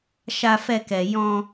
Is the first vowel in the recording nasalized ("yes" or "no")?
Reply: no